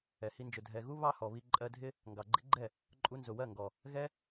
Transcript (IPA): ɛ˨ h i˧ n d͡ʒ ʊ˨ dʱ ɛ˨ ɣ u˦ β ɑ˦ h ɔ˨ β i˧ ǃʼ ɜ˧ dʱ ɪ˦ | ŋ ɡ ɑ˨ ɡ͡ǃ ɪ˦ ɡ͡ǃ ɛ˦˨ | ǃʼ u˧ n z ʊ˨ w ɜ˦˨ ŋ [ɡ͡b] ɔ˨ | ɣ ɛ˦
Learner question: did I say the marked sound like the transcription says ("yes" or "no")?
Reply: no